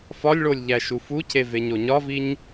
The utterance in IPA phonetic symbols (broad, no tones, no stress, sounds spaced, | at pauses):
f ɒ lʲ ɭ o lʲ ʎ æ ʃ u f u cʰ e v e ɲ o ɲ ɒ v i ɲ